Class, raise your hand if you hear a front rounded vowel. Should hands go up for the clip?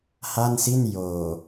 no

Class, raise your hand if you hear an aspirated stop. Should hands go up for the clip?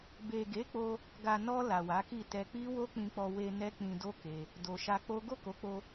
no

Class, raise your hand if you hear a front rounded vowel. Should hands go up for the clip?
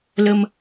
no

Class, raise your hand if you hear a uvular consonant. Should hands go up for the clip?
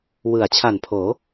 no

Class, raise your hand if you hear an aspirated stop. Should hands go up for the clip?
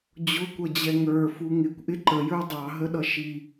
no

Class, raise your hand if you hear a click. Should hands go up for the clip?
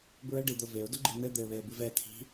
yes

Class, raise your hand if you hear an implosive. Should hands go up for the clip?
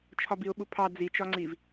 yes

